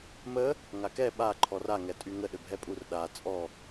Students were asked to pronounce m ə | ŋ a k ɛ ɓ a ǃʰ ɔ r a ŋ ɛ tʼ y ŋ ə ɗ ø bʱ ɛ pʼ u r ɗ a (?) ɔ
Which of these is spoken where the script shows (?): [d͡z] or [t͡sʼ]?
t͡sʼ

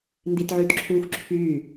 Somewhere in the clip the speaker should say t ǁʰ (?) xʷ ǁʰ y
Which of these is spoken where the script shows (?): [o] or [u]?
u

